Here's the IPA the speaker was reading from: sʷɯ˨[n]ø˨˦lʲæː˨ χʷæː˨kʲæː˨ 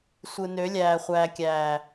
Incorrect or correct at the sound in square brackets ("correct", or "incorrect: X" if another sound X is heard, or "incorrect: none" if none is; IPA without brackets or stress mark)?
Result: correct